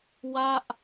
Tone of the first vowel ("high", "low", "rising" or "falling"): falling